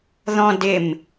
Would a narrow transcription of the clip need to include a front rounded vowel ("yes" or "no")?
no